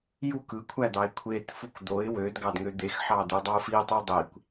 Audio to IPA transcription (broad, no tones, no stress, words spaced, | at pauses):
juk ɯ kʷʰæd̪ɑɪ̯kʷʰet fukd̪oɪ̯ wød ɡɑdŋød̪ex ħɑd̪ødˤɑʊ̯fi tˤudˤikʷ